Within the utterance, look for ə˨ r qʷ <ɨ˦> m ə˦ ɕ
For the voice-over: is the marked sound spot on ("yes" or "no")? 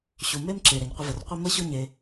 no